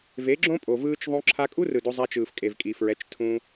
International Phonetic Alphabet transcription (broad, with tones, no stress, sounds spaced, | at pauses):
v e˨˦ ɡ͡ǁ õ˦ pʼ o˨ v ɯː˦ t͡ʃ ðˤ õ˦ ǁʰ a˧ kʼ u˦ r ɯ˨ d o˧ zˤ a˧ t͡ʃ ɯː˨ f kʼ e˨ v kʼ i˨ f ɹ ɛ˨˦ t͡ʃ tʰ ũ˧